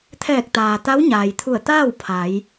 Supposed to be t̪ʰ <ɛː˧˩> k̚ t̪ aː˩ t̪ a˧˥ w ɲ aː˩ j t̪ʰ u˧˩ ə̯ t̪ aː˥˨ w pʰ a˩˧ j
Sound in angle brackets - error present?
no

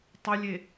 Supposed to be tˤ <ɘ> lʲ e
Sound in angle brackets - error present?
no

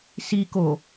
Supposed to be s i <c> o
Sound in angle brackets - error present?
yes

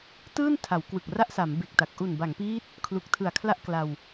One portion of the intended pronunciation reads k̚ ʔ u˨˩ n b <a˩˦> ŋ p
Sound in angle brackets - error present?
no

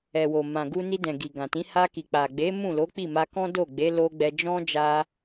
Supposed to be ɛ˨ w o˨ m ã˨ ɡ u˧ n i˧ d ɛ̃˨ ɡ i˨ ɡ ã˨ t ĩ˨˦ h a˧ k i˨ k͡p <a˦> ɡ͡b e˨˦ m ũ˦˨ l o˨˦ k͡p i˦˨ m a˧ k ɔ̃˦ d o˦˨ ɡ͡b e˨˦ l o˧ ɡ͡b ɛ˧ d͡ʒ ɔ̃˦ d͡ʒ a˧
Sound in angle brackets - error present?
yes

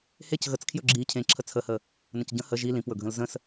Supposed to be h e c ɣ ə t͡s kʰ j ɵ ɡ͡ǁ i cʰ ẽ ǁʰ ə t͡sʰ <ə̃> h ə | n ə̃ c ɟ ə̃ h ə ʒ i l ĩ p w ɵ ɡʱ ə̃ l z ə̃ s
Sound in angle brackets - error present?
yes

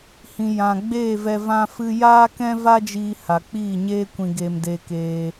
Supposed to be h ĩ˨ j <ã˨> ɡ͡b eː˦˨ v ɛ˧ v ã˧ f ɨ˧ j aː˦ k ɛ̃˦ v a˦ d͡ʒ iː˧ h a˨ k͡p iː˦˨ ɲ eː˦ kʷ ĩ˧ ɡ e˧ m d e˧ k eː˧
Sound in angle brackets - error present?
no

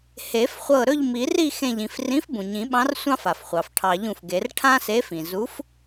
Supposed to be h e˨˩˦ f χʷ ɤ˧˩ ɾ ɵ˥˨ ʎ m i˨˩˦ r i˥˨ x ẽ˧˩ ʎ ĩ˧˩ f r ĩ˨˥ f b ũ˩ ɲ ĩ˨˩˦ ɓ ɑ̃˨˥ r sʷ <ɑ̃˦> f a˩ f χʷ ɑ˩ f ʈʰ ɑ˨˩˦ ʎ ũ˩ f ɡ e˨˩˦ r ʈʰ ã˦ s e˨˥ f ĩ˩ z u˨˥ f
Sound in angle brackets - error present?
no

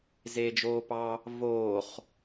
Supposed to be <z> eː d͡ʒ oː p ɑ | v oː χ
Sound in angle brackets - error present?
no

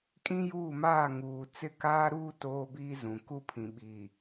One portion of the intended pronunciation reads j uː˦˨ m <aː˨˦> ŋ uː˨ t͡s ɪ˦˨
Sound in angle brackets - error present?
yes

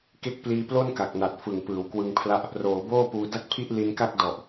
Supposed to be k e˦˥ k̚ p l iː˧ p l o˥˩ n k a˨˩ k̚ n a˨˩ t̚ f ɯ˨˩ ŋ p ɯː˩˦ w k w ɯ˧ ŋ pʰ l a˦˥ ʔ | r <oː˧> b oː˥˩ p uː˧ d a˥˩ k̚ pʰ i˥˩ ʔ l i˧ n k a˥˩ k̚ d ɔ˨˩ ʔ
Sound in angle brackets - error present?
yes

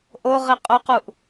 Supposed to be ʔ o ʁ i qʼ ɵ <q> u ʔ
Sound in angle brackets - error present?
no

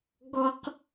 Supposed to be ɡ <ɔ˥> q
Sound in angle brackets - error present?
no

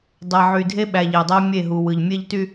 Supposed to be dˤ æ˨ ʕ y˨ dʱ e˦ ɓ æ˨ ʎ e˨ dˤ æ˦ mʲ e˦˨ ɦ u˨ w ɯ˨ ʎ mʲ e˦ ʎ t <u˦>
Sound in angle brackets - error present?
yes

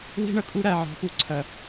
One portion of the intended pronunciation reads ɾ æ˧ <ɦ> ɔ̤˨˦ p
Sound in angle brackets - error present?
yes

